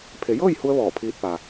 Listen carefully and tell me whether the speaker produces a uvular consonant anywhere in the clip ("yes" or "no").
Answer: no